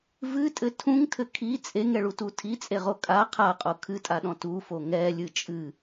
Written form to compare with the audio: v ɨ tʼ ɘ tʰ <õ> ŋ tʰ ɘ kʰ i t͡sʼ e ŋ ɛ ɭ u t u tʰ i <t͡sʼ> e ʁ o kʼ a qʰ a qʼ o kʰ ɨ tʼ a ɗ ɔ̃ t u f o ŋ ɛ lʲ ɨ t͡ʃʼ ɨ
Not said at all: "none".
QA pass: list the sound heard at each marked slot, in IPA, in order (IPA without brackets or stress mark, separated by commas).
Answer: ũ, t͡sʼ